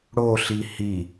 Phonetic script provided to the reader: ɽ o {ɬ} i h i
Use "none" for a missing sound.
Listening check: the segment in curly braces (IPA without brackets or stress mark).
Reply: ɬ